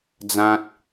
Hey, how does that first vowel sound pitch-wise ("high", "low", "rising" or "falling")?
high